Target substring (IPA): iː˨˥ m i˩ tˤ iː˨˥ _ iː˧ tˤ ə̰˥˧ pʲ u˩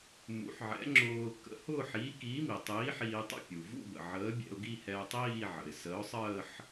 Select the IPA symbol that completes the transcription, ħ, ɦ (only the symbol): ħ